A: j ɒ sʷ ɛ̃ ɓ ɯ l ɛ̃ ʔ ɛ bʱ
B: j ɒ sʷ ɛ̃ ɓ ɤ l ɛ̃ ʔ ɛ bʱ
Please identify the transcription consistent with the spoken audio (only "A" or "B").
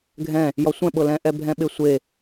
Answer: B